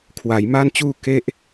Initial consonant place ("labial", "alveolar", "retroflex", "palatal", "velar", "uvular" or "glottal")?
velar